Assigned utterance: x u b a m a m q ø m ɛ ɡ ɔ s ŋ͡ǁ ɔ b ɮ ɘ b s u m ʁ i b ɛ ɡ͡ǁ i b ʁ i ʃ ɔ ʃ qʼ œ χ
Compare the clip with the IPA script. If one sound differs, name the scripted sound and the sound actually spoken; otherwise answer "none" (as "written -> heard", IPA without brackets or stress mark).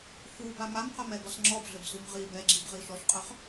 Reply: ø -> œ